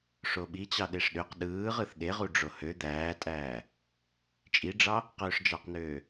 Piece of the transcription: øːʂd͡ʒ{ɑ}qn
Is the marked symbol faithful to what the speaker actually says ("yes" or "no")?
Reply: yes